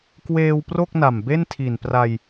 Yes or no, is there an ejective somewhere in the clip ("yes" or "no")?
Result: no